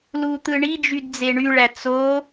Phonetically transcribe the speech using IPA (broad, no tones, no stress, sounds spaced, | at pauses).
l u t̪ ɯ ɳ i d͡ʒ y d d͡z e ɳ y ɭ æ t͡s o